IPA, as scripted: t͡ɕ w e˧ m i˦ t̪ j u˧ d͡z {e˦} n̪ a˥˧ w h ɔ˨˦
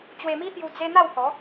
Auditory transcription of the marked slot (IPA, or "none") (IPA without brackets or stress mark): e˦